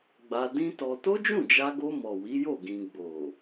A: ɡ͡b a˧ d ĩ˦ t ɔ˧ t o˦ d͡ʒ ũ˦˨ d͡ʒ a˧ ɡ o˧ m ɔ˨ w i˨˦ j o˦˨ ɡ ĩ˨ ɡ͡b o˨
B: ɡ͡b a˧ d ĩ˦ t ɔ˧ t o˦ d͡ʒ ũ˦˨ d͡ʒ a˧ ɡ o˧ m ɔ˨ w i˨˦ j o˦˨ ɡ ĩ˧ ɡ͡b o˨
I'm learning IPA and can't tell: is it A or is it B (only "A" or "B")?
B